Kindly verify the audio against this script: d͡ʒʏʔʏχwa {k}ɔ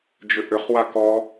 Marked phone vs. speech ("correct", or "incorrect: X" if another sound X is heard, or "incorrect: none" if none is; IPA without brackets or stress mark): correct